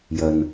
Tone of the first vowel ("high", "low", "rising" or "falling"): low